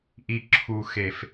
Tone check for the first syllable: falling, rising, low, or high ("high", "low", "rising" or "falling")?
low